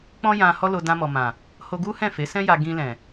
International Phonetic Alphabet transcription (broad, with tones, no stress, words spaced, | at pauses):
k͡pɔ̃˦jã˧ hɔ˦lo˧ dã˧mɔ˨mã˨ | ho˧ɡu˦ hɛ̃˦˨fe˨˦sɛ̃˦ja˧ ɡĩ˧lɛ̃˨